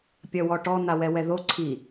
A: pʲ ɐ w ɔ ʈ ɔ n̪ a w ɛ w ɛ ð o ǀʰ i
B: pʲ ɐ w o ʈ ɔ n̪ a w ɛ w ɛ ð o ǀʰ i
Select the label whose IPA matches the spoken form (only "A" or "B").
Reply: A